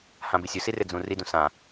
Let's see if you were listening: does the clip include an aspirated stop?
no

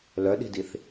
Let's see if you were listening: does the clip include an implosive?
yes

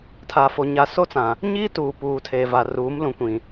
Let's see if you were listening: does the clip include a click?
no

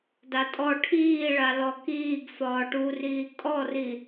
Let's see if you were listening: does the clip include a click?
no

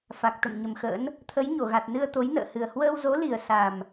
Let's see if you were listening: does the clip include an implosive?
no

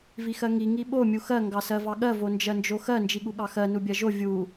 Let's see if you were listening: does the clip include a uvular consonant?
no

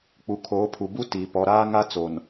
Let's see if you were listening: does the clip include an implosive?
no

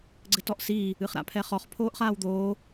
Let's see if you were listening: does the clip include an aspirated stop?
yes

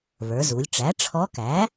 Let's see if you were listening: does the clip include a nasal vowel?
no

